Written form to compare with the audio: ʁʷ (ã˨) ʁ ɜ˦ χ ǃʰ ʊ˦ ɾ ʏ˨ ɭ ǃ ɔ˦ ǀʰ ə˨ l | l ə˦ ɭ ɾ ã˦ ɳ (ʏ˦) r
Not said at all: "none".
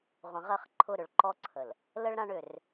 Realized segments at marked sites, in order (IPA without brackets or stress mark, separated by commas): ə̃˨, ʏ˦˨